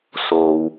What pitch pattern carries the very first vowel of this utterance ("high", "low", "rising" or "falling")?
low